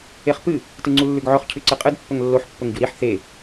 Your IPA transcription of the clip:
e χ p ɨ | t ɨ ŋ͡ǀ u lː ʉ ɡ ʕ ɵ χ cʰ ʉ ǀ ɨ qʼ ɨ d pː ɵ ŋ lː o ħ pː ɵ ŋ ɟ u ɾ i ħ θ e

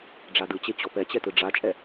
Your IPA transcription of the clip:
ɖ͡ʐ a d ɯ t͡ɕ e t͡ɕ ɔ p ɛ t͡ɕ ɛ t ɯ ɖ͡ʐ a t͡ʃʼ ɛ

